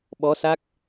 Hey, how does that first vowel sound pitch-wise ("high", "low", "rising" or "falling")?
rising